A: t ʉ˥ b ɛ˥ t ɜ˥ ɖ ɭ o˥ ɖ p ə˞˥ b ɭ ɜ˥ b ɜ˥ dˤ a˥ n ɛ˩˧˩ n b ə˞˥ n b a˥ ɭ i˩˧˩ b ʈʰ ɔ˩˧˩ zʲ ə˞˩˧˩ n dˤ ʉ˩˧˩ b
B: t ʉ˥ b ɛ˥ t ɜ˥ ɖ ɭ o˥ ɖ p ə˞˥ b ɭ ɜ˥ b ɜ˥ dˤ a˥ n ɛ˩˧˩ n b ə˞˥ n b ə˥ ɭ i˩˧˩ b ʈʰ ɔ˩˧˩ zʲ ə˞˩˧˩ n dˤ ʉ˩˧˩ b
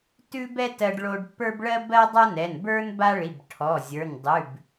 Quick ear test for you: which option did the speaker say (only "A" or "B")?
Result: A